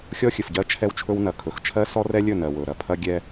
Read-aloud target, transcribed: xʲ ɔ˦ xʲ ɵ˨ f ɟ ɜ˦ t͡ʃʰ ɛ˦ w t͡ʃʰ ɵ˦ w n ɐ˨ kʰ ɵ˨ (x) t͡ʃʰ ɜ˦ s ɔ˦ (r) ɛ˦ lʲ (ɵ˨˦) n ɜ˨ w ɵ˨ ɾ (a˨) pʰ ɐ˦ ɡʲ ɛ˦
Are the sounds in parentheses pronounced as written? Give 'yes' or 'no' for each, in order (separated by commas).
yes, yes, no, no